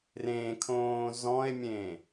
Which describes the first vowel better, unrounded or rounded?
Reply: unrounded